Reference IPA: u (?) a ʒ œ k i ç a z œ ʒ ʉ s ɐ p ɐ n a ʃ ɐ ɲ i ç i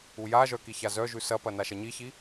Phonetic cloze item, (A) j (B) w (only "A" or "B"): A